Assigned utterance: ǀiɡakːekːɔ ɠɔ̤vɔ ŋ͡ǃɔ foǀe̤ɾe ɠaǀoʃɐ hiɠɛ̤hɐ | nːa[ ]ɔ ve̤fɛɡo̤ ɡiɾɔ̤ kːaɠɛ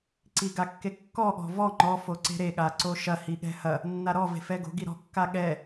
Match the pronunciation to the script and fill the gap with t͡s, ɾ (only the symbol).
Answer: ɾ